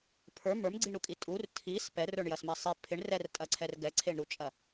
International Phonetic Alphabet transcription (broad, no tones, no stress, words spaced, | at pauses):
pʰə˞ mə˞mɡ͡ǀiɳɾukʼi tʼur tʰis pɛrə˞ɳjɐsmɛ sˤe pʰɪɳrɛrtʼɐǀʰɛr ɡɛǀʰeɳɾut͡ʃʼɐ